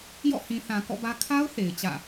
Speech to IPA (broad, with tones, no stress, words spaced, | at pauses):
jɔ̰˦˨hĩ˨ θã˨ kɔ̰˦˨bä˦ kʰa˦ʊ̯ θe˨ɪ̯t͡ɕä̰˦˨